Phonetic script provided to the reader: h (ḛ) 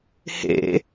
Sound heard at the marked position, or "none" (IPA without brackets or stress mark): ḛ